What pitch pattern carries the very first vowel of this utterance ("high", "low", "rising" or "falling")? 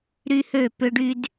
high